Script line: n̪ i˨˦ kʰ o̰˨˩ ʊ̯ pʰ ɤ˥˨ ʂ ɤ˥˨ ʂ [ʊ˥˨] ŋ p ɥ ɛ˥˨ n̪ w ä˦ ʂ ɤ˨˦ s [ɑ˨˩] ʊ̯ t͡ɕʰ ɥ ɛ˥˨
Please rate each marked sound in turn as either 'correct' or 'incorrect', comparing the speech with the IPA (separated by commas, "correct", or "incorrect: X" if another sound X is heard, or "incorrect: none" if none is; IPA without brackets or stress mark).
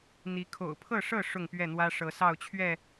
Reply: correct, incorrect: ɑ˥˨